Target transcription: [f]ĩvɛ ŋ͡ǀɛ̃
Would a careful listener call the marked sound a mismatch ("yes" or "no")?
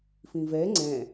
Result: no